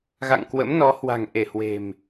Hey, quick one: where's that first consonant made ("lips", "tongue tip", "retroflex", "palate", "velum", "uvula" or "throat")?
velum